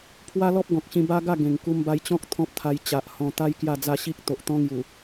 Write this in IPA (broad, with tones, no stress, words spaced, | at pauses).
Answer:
pʰwa˦lɔ˦p̚ ɡɔ̃˨k̚ɕĩ˧ ba˦ ɡa˥˧ ɡẽ˨˩ŋku˧m ba˧jt͡ɕɔ̃˦k̚ t̪ʰɔ̃˦p̚t̪ʰa˧j t͡ɕa˨ʔhɔ̃˧ t̪a˦j kja˥˧d͡za˥˧ ɕi˦k̚ t̪o˨ʔt̪ɔ̃˦ ŋju˨˩